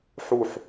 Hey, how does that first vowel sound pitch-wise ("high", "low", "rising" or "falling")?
falling